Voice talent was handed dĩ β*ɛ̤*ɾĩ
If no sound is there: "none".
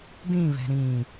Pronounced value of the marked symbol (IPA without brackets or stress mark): ɛ̤